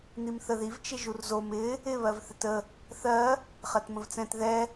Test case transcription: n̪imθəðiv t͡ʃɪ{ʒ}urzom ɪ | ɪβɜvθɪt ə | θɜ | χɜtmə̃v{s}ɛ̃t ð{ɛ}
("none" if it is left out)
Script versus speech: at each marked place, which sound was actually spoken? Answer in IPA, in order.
ʒ, t͡s, ɛ

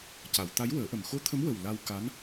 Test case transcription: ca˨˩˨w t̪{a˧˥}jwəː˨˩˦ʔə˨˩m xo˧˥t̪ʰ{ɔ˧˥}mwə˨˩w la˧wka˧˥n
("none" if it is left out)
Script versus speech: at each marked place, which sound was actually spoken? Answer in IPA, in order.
a˧˥, ə˧˥

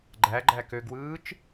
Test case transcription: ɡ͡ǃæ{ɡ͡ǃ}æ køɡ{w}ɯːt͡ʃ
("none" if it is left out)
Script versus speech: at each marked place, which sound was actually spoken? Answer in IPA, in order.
ɡ͡ǃ, w

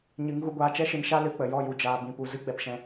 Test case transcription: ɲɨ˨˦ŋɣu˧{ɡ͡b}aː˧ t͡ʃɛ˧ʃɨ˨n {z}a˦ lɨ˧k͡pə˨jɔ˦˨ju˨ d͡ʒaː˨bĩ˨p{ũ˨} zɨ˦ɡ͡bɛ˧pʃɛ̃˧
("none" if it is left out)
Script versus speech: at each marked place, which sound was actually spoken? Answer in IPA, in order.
ɡʷ, ʃ, u˨

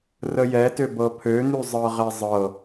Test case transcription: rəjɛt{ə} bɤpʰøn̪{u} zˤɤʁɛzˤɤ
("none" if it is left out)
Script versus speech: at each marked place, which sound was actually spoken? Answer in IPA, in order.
ø, ʉ

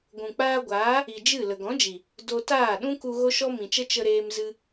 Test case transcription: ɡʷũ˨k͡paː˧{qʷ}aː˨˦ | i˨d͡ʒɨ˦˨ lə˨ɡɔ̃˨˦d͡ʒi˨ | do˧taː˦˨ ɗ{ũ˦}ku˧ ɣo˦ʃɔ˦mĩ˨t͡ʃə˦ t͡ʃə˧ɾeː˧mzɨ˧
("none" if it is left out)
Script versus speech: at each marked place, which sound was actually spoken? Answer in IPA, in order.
ɡʷ, ũ˦

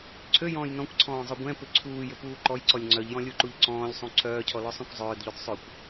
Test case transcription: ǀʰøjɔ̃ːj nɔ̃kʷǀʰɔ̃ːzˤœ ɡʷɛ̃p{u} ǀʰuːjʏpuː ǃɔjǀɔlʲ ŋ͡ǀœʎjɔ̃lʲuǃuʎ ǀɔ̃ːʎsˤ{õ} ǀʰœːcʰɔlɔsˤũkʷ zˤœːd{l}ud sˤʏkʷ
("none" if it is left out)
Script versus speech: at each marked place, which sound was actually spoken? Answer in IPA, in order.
ʏ, ũ, ʎ

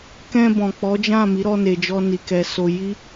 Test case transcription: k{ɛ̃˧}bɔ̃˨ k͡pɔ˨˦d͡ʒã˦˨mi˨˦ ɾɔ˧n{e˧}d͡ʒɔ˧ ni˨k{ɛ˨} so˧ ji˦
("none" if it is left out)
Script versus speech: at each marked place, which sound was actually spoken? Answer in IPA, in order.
ɛ̃˧, e˨, ɛ˨

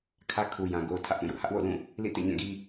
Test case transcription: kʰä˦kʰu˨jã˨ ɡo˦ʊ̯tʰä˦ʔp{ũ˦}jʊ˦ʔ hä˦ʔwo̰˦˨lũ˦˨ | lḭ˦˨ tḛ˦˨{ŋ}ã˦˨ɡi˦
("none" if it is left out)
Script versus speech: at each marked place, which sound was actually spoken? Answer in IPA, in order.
ũ˦˨, ɲ

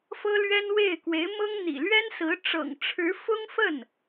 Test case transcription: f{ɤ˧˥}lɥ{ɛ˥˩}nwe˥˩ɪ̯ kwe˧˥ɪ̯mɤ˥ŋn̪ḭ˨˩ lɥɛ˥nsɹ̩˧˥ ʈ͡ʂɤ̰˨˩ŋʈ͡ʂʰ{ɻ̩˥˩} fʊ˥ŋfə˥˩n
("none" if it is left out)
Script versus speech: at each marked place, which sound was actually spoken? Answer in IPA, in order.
ɤ˥, ɛ˥, ɻ̩˧˥

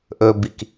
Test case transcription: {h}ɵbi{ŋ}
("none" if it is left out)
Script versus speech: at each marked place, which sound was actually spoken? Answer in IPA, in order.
ʔ, k

